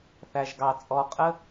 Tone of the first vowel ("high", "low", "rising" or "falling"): low